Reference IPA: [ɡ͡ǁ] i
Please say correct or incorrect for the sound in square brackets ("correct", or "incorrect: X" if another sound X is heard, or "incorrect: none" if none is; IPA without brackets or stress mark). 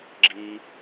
correct